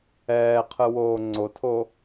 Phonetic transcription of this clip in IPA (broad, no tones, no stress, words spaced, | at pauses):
ɛːqʰɯwoː ŋ͡ǀotʰo